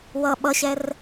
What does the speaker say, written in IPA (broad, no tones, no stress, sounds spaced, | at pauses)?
w ʌ ɓ ʌ ɕ ɛ r